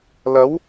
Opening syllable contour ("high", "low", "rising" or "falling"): rising